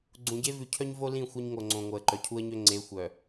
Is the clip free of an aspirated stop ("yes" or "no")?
no